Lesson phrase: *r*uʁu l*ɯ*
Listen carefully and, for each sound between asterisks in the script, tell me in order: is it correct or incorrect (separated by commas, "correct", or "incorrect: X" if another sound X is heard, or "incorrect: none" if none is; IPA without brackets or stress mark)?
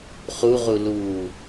incorrect: χ, incorrect: u